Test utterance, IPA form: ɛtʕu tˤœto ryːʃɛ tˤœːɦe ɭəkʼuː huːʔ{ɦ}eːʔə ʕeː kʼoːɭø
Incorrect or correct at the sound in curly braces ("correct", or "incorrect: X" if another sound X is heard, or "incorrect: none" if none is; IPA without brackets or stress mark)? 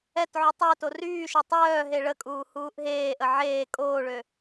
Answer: correct